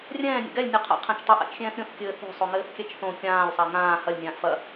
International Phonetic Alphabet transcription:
rʲɛ̃ː nʲɛ̰ɡɛlʲ nʲoqʰa̰ qʰɛ̃t͡ʃtˤɘ ʔa̰t͡ʃxʲɛ̃ːθɾʲõθ kʲɘːθo̤sˤoŋɘːθ kʲɛt͡ʃθõ kʲãːlʲsˤa ŋãː hɐlʲnʲãːʔ fɐ

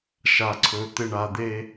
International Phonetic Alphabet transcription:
ʃa˨ǀʰɵ˨ t̪ɪ˨ɳa˨ d̪e˦

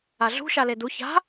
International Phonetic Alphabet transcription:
aɮṳʃale du ça̤

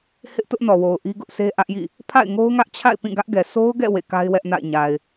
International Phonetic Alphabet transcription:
hɪ˦ʔtʊ˦ʔnɔ˨wo˨ʊ̯ ʔi˦ɡʊ˦ʔsʰe˦ ʔä˦ʔjḭ˦˨ | pʰa̰˦˨ɪ̯ŋo˦ʊ̯ŋä˦ʔt͡ɕʰa̰˦˨ɪ̯ pĩ˦˨ɡä˦ʔɡɛ˨ sʰo˦ʊ̯ɡɛ̰˦˨ wḛ˦˨ka˦ɪ̯wɛ˦ʔna̰˦˨ɪ̯ ɲa˨ɪ̯

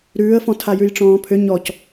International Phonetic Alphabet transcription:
ɾʉːə̯fɔ̃ tʰajʉjʈ͡ʂɔ̃ːpʰʏ ɲɔc

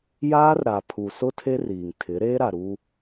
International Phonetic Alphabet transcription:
jaː˦rɾa˨ pʰu˨sʊ˦ tʰe˦riː˨ŋtʰɪ˨˦ɾeː˦ ɾa˨ɾu˦

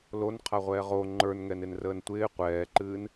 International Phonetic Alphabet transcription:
lonqʰaʁʷɛː ʁo ŋ͡ǃə˞nŋɛnɪnrəːn tʷɪː qʷɛːǃɨːn

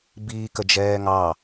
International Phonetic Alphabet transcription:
biːkəd͡ʒɛːŋɑ

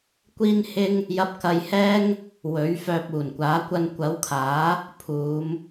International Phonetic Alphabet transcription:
kʷiː˥nhɪ˥ŋ | jɐ˧p̚kɐ˧jhɛː˥ŋ | wɵ˨˥ɥfœː˧p̚ uː˨˩nkʷaː˨˥ kʷɐ˧nkʷɐ˨˥wkʰaː˨˥ | pʰuː˨˧m

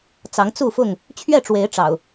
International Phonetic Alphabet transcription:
t͡sɑ˨˦ŋt͡su˥˨fʊ˥˨ŋ | t͡ɕʰɥɛ˥˨ʈ͡ʂwe˨˦ɪ̯ ʈ͡ʂɑ̰˨˩ʊ̯

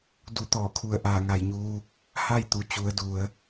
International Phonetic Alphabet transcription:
du˧˩t̪ɔː˧˩kʰu˧˩ə̯ ʔaː˧˩ŋa˧˩jɲuː˧ | ha˥˨jt̪u˩˧ t͡ɕu˩˧ə̯du˩˧ə̯

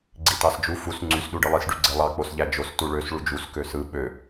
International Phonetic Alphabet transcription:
ɡ͡ǀitɑsd͡ʒu fus ŋ͡ǀys ɗuɖɯlˠis ɖyɡ͡ǀelˠɑ k͡posʎæd͡ʒos tuɭøs ɭud͡ʒus køsɯ ɓø

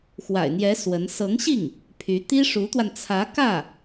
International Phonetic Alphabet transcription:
xwa̰˨˩ɪ̯n̪jɛ˧˥ swə˧˥n sɤ˧˥ŋɕi˥˩ŋ | pʰy˧˥ t̪i˥ʂu˧˥t̪wa˧nt͡sʰä˧˥ kä˥˩

